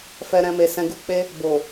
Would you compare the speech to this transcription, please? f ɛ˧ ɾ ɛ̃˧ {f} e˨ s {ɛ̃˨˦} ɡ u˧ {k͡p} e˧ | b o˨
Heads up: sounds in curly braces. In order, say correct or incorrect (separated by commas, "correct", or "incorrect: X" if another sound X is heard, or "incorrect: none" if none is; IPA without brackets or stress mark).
incorrect: m, incorrect: ɛ̃˧, correct